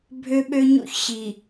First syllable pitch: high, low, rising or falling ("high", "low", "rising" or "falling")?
high